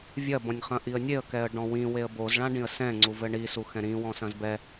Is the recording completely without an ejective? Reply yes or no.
yes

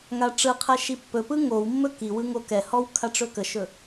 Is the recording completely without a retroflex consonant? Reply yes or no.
no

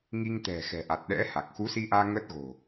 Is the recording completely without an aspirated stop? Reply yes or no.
yes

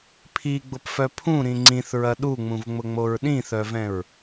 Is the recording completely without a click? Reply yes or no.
no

